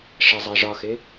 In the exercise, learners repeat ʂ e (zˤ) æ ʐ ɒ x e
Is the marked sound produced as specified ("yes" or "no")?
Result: yes